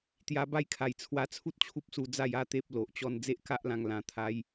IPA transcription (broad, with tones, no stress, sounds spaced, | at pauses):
t̪ j a˧ b a˥˧ j kʰ a˨˩ j t͡sʰ w a˧ t͡sʰ u˦ t̚ t͡ɕʰ u˦ p̚ s u˧ d͡z a˥˧ j a˦ t̪ e˦ p̚ l o˨ ʔ t͡ɕ ɔ˥˧ n d͡z e˦ ʔ k a˦ ʔ l ã˧ ŋ l ã˧ t̪ʰ a˦ j